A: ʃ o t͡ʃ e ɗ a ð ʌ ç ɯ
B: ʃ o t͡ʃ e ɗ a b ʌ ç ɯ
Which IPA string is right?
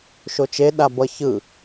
B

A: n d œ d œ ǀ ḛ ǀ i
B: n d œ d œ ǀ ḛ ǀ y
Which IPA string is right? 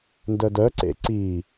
A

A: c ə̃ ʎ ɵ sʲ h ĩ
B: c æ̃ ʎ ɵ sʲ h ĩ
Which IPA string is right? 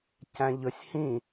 B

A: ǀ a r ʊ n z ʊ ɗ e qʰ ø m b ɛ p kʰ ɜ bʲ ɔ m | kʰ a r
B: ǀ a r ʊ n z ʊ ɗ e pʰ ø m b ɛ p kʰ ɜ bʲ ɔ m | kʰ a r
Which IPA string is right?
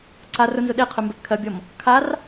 A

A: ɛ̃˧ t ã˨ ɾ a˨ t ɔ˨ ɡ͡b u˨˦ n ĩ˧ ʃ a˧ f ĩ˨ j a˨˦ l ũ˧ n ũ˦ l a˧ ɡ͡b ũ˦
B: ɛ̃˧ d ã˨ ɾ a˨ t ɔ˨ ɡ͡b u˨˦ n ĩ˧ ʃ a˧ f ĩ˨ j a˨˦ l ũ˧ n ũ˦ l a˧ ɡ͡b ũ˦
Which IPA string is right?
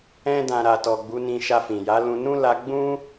B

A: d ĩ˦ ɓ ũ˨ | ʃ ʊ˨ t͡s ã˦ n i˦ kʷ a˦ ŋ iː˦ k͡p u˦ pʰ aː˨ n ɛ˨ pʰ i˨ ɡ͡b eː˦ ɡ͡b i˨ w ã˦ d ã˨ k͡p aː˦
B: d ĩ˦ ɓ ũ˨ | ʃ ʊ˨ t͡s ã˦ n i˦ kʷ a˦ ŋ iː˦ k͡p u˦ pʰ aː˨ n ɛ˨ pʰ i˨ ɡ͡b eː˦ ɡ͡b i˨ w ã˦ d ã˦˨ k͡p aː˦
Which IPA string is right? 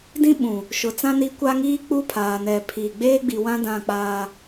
B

